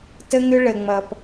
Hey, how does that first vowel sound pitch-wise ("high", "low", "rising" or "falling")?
high